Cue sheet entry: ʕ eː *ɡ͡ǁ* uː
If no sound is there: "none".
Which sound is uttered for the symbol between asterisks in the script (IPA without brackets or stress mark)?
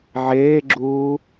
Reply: ɡ͡ǁ